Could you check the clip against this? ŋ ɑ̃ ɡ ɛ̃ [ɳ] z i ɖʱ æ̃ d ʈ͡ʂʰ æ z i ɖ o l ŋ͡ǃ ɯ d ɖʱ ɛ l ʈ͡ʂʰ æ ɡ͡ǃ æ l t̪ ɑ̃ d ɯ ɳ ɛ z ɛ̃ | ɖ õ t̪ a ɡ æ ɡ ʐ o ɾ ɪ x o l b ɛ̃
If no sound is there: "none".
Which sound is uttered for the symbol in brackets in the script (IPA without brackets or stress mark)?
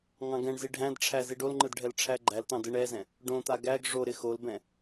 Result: ɳ